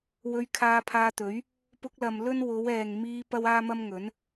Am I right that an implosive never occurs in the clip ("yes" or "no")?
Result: yes